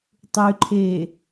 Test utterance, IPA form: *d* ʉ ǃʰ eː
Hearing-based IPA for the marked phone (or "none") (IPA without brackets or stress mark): tˤ